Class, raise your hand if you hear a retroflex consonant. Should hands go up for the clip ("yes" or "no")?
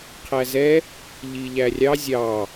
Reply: no